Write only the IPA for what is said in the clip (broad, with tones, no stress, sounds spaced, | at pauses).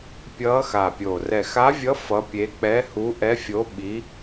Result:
pʲ ʌː˧˥ x a˨˩ pʲ o˨˩ r ɛ˨˩ x a˧˥ vʲ ʌ˧˥ f ʌ˧˥ pʲ e˧˥ k͡p ɛ˧˥ h u˧˥ ʔ ɛ˧˥ fʲ o˧˥ ɓ i˧˥